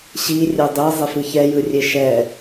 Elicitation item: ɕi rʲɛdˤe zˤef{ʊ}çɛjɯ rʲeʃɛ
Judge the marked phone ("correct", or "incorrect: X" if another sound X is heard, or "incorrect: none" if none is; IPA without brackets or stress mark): incorrect: ɯ